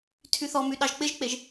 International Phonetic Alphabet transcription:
tʰ y θ ɔ m y ɗ ɑ ʒ k͡p ɪ ʒ k͡p e ʒ

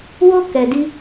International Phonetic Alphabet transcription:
w o˦ k ɛ˧ d i˦

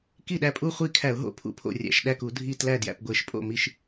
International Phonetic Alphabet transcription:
k i˥˩ ɗ æ˥˩ pʼ u˥˩ χʷ i˥˩ kʰ æ˧˩˧ ʊ̯ ɦ o̰˥˩ pʰ ṵ˥˩ pʰ o̰˥˩ rʲ æ̰˧˩˧ ʃ ɗ æ˥˩ k u˧˩˧ dʱ i˥˩ t l æ˥˩ d j æ̰˥˩ p ɡʷ e˧˩˧ ʃ pʼ o̰˥˩ m i˥˩ ʃ

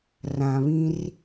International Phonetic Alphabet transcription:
r ã˨ β ĩ˦ r

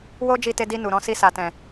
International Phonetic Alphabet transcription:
w o˦ d͡ʒ i˧ t e˧ d i˧ n u˨ ɾ ɔ̃˨˦ s i˧ s a˨ t ɛ̃˨

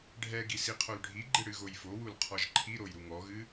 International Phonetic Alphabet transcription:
ɖʱ ɛ ɡ i s i qʰ o l ɖʱ i ɡ͡ǃ ɨ ɽ ɨ ɣ o j f o w u l qʰ ɔ ʒ ǃʰ i ɾ o j ɾ u ŋ ɔ ɣ ɨ

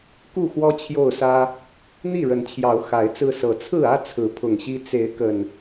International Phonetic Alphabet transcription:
k u˥˨ x w ɔ˦ t͡ɕʰ j o˥˨ ʊ̯ s ä˦ | n̪ i˥˨ ɻ ə˨˦ n t͡ɕʰ j ɑ˨˦ ʊ̯ x a˨˦ ɪ̯ t͡s ɹ̩˦ s ɤ˨˩ t͡sʰ ɹ̩˥˨ ä˦ t͡sʰ ɹ̩˨˦ pʰ ʊ˨˩ ŋ ɕ i˦ t͡s e˨˦ ɪ̯ k ə˨˩ n

